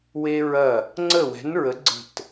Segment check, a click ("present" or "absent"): present